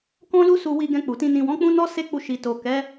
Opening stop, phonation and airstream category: plain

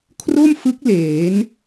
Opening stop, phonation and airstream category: aspirated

